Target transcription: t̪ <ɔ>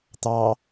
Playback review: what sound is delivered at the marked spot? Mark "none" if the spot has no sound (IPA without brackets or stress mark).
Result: ɑ